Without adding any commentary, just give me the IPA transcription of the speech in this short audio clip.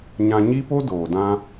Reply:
ɲ ã˧ ɲ i˦ p o˦ d oː˨ d ã˧

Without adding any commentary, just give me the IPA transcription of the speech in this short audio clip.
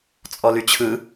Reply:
t͡sʼ ɔ l y t͡ɕʰ ɯ

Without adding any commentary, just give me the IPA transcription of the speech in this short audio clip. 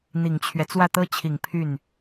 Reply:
n̪ i˨˩ ŋ t͡ɕʰ ɥ ɛ˦ t͡s w ä˥˩ t̪ ɤ˥ t͡ɕʰ i˨˩ ŋ pʰ y˥˩ n

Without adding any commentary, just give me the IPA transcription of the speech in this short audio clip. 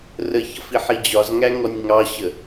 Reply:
r ə ç ʌ f i ħ i d͡ʑ ɒ z ŋ æ ŋ ɔ nʲ ŋ ɑ ɕ ə

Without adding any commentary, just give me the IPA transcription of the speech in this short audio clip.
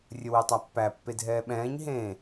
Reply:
rʲ ə w e tˤ a pː æ pː e dʱ ɛː ɓ ɛ̃ː ɲ ɦ ẽ

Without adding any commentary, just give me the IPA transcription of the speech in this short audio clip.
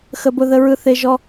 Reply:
x ə˧ b ʊ˧ ð ə˧ ɹ ɯ˧ θ e˧ ʒ ɔ˧

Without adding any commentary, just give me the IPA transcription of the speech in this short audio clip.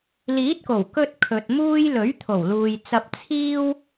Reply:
l iː˨˥ t̚ k o˨˩ w k ɵ˧ t̚ kʰ ɵ˨ t̚ m uː˥ j l ɵ˨˥ ɥ t̪ʰ o˨˩ w l uː˨ j t͡s ɐ˧ p̚ t͡sʰ iː˥ w

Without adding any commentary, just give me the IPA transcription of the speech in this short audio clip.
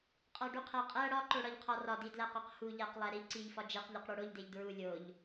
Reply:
qʼ ɒ ɖ u qʰ æ qʼ æ ɽ ɒ ǃ o ɽ ɒ ʎ qʰ ɒ r ɒ d i d l æ q ɒ q h u ʎ æ q lˠ æ ɾ i ǀ i ʎ f ɒ d͡ʒ e q ʎ ɒ q ɽ o ɽ o ʎ d e ʎ d ɹ u lʲ o ʎ

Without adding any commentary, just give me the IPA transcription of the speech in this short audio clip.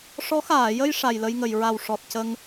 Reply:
ʂ ɔ˧˥ x aː˨˩˨ j ə˧ j ʂ a˨˩ j l ə˧ j ŋ ə˨˩˨ j ɹ a˨˩ w ʂ ɔ˨˩ t̚ c ə˧ ŋ

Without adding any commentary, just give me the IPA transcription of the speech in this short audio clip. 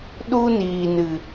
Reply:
ɗ u˦ n iː˨ n ɨ˨

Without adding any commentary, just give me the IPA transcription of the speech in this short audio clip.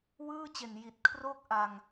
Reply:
w ɯː˥˩ t͡ɕ e˨˩ n j i˨˩ t̚ kʰ r o˥˩ k̚ ʔ a˧ ŋ

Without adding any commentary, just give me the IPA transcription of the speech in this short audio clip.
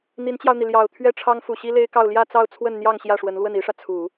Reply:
n̪ i˧˥ n t͡ɕ j ɑ˧ ʊ̯ n̪ i˩ l j ɑ˨˩ ʊ̯ t̪ʰ ɥ ɛ˥ ʈ͡ʂʰ ɑ˥ ŋ f u˨˩ ɕ i˥ l e˥ ɪ̯ k ɑ˥˧ ʊ̯ l j ä˥˧ t͡s ɑ˥˧ ʊ̯ t͡sʰ w ə˥˧ n n̪ j ɑ˥˧ ŋ ɕ j ä˥˩ ʂ w ə˧˥ n l w ə˥˩ n i˥ ʂ ä˨ t͡sʰ u˨˩˦

